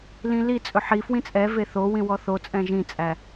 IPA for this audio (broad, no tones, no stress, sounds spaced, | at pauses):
l ĩ l i t͡sʼ ɵ ħ i f w ĩ t͡sʼ ɛ v e θ o w ĩ w ɔ θ o t͡sʼ ɛ̃ ʒ ĩ t͡sʼ æ